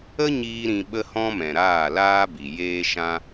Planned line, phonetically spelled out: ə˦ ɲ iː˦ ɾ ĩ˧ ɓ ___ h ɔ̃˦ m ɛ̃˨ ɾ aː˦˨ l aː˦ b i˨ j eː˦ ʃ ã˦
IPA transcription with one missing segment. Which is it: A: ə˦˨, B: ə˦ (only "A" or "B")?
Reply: B